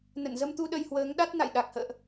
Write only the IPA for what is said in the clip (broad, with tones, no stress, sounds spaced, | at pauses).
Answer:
n ə̰˧˨ n z ə˧ m t̪ u˧ ɗ ə˧ j h w əː˨˦ ŋ ɗ a˦˥ t̚ n a̰˧˨ j ɗ a˨˩ k̚ h ə̰ː˧˨ ʔ